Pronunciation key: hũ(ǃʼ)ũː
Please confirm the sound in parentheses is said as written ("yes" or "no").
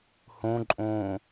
yes